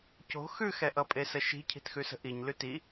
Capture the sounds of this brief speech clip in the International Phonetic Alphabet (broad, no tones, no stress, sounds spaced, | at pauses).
c o̤ x ʉ x ɛ ʔ ʌ pʼ e s ə ʃ i̤ cʰ i̤ t x ʉ s ə̤ ʔ i ɲ l ʉ t i